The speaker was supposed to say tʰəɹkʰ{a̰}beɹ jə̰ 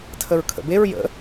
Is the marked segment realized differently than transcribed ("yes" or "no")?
yes